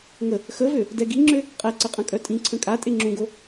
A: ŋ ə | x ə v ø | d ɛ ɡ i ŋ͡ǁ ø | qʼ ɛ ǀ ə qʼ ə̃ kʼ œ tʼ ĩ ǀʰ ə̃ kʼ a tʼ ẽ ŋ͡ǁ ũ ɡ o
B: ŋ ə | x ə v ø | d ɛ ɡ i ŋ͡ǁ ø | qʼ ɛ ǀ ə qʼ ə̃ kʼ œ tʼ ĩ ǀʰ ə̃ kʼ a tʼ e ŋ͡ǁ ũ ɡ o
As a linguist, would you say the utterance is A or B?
B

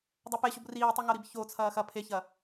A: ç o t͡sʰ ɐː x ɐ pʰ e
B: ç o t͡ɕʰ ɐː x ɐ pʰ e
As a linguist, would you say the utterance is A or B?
A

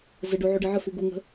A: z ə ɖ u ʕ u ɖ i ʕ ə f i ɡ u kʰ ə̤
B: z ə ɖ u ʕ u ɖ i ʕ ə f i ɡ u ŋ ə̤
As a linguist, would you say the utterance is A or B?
B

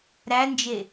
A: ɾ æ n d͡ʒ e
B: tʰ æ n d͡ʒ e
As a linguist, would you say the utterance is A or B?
A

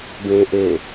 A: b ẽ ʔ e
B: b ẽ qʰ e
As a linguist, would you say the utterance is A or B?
A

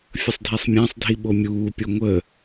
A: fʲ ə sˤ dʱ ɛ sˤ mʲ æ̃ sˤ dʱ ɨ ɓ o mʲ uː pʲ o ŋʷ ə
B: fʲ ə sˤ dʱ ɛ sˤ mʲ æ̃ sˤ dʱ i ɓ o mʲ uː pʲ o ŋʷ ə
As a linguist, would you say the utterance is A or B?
B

